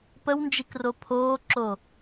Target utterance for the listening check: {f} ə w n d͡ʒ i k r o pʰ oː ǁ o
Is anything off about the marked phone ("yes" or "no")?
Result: yes